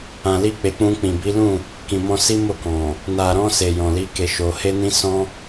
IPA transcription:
ã˨ l i˧ k͡p e˨ k͡p ũ˧ k͡p ĩ˨ b i˨˦ l ũ˦˨ | k ĩ˨ m ɔ̃˧ s i˦ m o˦˨ k ɔ̃˨ | n a˨ ɾ ɔ̃˧ s e˨ j ɔ̃˨ l i˨˦ k e˧ ʃ o˧ h e˦ n ĩ˦ s ɔ̃˦

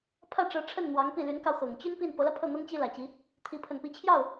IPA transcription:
pʰ ä˥˩ ʈ͡ʂ ɤ˧˥ ʈ͡ʂʰ ə˥˩ n n̪ w ɑ˧˥ ŋ p i˥˩ l y˧˥ n k ɑ˧ ʊ̯ x ɤ˨˩ ŋ t͡ɕ y˥ n p i˥˩ n p ɤ˧˥ l ä˧ pʰ ɤ˥˩ n̪ ɤ˥ ŋ t͡ɕ i˥ l ä˨˩ t͡ɕ i˧˥ | t̪ʰ i˧˥ pʰ ə˨˩ n p i˧˥ t͡ɕʰ j ɑ˥˩ ʊ̯

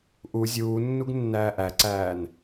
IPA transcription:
ʔ u zʲ uː nː u ɡ nː æː ʔ æ ǀ æː n

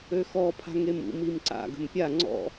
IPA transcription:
ø x ɔ pʰ a̤ ŋ e m ṵ m i m ǀ a̰ ɡ ə̤ m pʲ a ŋ͡ǀ ɔ̰

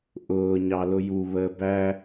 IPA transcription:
ʔ ʊː ɲ ɑ l ʊ j u β əː b æ

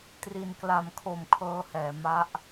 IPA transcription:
t r i˨˩ n k l a˨˩ m kʰ o˨˩ m kʰ ɤː˧ h ɛː˨˩ m a˦˥ ʔ

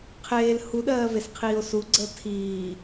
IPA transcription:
qʰ eː l h u ɗ ɜː v e s qʰ iː o̯ s u ɡ͡ǀ əː tʰ iː

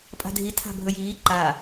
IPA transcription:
pʼ a̤ dʱ i tʰ a̤ bʱ ɵ j iː ǃ a

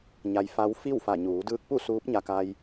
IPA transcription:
ɲ a˧ j f a˧˥ w f i˥˨ w f a˧˩ ɲ uː˩˧ d ɯː˧ k̚ p u˥˨ s uː˧˥ p̚ ɲ a˧ k a˧ j

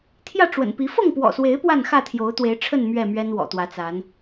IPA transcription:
t̪ʰ j ä˥˨ ʈ͡ʂ w ə̰˨˩ n p i˨˦ f ɤ˥˨ ŋ p w ɔ̰˨˩ s w e˨˦ ɪ̯ p w a˥˨ n x ä˥˨ t̪ʰ j o˨˦ ʊ̯ t̪ w e˨˦ ɪ̯ ʈ͡ʂʰ ə˥˨ n m ɥ ɛ˥˨ m ɥ ɛ˦ n w ɔ̰˨˩ t̪ w ä˨˦ t͡s a˨˦ n

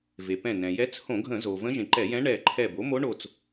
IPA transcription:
v e˩ p ɛ̃˧˩ n ɛ̃˩ j ɛ˧˥ t͡s h õ˧˩˧ ɡʱ ə̃˧˩˧ z o˩ v ə̃˧˥ ʒ ẽ˩ ǃ ɛ˧˩˧ j ɛ̃˧˥ ɳ ɛ˧˩ ǃʰ ɛ˧˩ b o˩˥ m o˧˥ ɳ o˧˩ t͡s

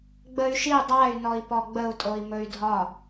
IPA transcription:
ɡ͡b ə y̯ ʃ i dˤ a y̯ n ɔ i̯ p ɔ ɡ͡b ə u̯ tʼ o i̯ m ɵ y̯ dʱ ɒ

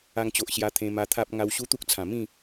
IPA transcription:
a˧ ŋ t͡ɕ o˨ ʔ ɕ j a˧ t̪ʰ ẽ˧ m a˧ t̪ʰ a˦ p̚ ŋ a˧ w ɕ u˦ t̪ u˦ k̚ t͡sʰ ã˨˩ m ĩ˥˧

